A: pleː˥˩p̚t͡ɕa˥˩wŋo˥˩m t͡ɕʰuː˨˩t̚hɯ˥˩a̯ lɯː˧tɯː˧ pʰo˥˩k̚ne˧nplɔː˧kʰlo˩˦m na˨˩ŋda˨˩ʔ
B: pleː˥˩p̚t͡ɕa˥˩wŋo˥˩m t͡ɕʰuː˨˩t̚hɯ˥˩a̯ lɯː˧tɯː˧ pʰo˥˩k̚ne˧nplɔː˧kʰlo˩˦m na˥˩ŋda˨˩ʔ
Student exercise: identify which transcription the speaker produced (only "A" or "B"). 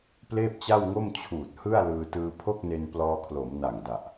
A